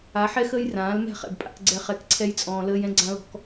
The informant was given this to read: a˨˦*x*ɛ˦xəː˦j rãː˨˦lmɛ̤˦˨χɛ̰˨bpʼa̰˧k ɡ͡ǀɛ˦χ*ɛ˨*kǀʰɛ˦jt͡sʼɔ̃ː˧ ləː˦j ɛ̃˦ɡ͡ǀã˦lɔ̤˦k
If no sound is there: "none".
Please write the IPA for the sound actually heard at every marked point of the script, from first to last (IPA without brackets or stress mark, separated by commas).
ħ, ɛ˧